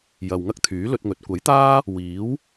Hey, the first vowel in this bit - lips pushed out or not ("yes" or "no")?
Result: no